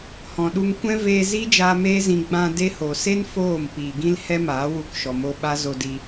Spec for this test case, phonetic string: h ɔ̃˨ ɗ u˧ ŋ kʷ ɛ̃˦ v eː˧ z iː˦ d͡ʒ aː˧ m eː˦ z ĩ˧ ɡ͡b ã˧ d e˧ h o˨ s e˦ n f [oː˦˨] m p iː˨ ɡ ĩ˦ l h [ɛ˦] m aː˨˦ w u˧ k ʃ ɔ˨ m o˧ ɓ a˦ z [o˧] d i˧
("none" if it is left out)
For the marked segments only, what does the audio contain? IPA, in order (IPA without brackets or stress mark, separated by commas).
oː˦˨, ɛ˦, o˧